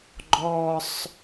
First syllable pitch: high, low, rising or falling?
low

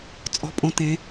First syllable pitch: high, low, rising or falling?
low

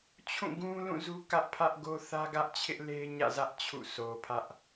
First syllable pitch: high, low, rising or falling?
falling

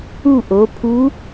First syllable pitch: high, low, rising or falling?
falling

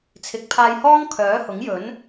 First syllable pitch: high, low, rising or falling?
rising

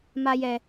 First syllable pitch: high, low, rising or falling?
high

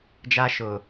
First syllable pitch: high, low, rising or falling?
high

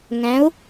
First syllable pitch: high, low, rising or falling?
rising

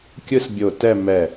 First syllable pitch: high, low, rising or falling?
high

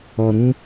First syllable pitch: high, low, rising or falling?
low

